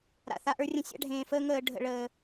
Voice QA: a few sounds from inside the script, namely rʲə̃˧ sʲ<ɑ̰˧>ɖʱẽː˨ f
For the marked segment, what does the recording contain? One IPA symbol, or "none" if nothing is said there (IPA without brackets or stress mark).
a̰˧